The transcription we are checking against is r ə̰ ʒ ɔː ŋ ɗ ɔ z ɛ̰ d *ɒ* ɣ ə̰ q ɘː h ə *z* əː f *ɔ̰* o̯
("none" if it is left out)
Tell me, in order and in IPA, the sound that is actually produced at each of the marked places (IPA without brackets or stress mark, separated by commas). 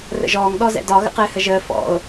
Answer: ɒ, ʒ, ɔ̰